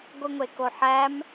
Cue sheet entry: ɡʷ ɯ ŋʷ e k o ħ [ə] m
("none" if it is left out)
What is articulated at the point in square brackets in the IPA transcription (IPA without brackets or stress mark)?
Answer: æ